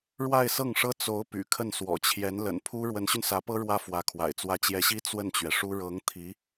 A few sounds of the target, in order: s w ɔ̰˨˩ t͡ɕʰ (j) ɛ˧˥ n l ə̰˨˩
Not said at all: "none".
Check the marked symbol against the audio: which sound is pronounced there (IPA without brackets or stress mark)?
j